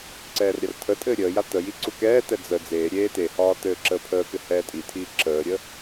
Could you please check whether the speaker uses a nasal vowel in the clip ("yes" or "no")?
no